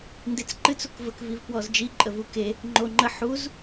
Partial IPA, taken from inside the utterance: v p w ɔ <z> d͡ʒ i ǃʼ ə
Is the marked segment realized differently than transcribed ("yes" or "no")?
no